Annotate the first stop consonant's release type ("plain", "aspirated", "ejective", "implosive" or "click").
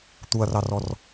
plain